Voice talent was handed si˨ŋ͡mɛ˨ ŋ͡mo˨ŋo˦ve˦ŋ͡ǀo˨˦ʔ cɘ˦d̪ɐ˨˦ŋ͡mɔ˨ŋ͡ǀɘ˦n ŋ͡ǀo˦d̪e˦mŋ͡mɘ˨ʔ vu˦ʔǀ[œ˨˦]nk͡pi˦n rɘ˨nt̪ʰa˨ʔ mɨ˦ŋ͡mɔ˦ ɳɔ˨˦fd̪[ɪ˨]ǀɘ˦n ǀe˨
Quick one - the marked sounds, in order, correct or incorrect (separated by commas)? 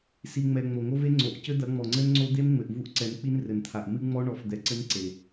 incorrect, incorrect